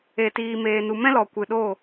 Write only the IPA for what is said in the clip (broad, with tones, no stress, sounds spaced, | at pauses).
e˨ t iː˧ m eː˧ n u˧ m ɛ̃˦ l ɔ˨ kʷ ɨ˨ ɗ o˦˨